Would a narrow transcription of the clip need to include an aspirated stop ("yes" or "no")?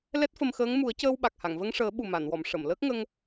no